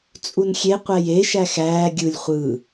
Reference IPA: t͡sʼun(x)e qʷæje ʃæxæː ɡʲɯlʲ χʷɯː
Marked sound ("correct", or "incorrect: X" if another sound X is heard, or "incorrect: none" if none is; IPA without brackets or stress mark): incorrect: xʲ